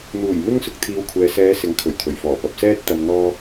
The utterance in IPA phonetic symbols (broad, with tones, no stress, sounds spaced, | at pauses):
n̪ uː˨˩ j m ɪ˥ ŋ s ʊ˨ k̚ t̪ʰ iː˨˧ w kʷʰ ɛː˨ s ɛː˨˧ s ɪ˨˥ ŋ kʰ ɵ˨˩ ɥ t̪ʰ ɵ˨˩ ɥ f ɔː˨˩ p ɐ˨ p̚ s ɛː˥ t̚ t̪ ɐ˧ m n̪ ɔː˥